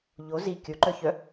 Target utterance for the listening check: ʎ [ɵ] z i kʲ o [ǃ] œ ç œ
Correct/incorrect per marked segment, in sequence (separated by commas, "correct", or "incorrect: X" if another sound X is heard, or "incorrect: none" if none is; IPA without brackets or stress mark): incorrect: o, correct